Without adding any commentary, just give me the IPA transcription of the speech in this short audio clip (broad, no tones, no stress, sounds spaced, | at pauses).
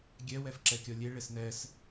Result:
ɡʲ ɛ w ɛ f ǁ ɛ kʲ ɔ lʲ e ɭ e s n ɛ s